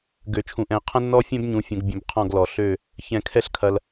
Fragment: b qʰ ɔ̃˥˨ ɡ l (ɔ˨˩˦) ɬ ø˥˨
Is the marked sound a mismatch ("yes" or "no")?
no